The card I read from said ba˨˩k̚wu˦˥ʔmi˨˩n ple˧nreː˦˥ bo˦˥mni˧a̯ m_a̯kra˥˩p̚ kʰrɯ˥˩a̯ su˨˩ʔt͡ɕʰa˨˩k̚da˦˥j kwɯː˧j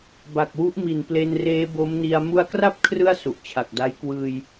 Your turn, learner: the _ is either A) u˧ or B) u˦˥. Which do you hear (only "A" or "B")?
A